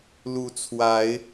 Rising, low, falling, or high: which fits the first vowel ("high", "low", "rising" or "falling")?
rising